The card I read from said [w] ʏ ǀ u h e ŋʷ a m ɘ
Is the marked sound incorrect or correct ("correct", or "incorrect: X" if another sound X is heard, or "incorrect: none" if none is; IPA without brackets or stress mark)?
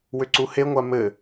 correct